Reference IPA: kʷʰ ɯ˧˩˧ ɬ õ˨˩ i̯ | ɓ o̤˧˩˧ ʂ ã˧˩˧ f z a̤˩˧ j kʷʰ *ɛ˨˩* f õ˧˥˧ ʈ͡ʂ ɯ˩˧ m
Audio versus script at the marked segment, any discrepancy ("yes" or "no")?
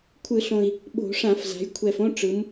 no